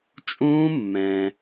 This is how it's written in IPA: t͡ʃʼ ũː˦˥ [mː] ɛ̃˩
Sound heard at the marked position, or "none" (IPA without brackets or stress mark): mː